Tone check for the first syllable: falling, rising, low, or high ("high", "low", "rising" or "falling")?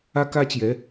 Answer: high